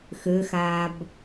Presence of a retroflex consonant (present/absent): absent